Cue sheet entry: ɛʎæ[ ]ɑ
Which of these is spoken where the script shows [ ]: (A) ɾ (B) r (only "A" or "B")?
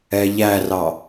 B